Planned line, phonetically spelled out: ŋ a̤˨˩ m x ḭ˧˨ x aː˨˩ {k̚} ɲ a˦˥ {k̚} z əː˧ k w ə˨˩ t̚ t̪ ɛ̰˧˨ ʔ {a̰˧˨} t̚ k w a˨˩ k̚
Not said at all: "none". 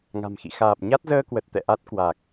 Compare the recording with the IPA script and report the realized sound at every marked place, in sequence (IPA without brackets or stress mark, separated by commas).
p̚, t̚, a˦˥